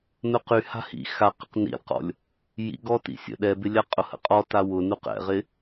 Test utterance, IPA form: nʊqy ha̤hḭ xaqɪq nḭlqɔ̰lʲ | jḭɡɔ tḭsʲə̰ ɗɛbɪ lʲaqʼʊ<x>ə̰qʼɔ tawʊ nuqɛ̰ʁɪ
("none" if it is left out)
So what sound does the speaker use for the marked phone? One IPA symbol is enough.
h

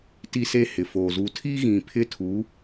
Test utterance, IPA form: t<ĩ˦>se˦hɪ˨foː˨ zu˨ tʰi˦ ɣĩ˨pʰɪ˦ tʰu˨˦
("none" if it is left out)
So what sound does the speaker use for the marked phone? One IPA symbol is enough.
i˦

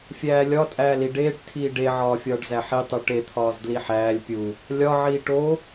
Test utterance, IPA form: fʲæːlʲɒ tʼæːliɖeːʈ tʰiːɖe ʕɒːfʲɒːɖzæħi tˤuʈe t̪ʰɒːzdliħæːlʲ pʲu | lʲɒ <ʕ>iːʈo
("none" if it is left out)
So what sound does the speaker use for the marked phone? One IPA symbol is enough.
ʕ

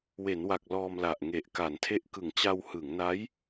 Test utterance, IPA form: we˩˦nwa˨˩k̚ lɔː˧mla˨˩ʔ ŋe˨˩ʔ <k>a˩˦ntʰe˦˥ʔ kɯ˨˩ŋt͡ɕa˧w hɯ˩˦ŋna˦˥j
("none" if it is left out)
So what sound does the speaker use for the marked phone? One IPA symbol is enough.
k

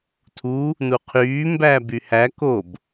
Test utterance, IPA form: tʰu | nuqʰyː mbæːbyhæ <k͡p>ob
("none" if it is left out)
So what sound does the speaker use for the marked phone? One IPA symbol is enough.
k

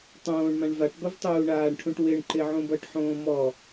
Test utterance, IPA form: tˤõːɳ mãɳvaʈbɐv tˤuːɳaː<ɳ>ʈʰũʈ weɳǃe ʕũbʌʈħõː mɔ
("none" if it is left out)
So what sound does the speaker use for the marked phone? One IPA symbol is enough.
ɳ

